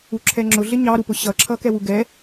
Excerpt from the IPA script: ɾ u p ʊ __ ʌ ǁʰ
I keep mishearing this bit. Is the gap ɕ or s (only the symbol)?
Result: ɕ